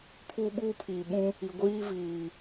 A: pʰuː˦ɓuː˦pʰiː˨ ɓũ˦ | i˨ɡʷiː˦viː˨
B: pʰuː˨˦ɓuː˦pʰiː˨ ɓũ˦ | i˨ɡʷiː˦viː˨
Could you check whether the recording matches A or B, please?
A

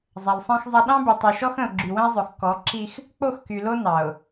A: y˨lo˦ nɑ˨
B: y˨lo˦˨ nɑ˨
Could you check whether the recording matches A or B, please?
A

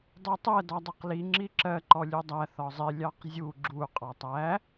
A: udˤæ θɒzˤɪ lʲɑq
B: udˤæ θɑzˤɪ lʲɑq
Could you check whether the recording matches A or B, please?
A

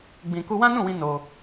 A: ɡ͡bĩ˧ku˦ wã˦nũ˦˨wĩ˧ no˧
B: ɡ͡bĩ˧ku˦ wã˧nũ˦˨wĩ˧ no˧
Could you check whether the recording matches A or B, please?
A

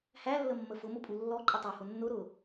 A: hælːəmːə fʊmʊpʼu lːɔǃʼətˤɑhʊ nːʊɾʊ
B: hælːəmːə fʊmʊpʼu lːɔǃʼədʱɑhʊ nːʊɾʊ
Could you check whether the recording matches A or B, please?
A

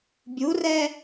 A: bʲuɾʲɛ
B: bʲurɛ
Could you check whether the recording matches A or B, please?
B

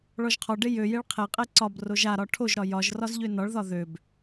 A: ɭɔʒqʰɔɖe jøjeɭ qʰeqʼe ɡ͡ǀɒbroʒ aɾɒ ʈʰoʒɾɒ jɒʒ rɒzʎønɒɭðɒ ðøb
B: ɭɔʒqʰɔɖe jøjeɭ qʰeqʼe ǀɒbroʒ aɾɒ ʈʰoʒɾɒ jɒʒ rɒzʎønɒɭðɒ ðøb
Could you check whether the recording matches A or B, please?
B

